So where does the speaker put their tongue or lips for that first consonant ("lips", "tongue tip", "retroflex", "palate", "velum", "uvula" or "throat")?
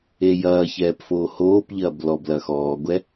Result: palate